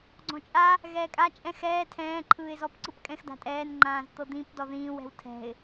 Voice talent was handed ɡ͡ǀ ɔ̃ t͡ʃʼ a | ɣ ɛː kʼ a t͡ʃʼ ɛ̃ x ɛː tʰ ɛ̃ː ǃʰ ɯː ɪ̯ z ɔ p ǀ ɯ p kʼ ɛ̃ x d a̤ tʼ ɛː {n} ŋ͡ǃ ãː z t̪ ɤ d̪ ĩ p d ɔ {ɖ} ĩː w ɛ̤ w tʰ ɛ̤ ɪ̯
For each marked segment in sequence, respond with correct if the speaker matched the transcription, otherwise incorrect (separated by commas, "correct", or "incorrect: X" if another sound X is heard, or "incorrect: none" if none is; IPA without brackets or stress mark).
correct, incorrect: ð